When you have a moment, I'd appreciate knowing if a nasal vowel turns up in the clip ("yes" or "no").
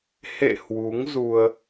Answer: no